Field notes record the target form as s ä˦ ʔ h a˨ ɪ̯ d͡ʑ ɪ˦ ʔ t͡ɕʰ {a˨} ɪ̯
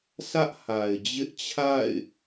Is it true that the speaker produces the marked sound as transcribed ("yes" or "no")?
no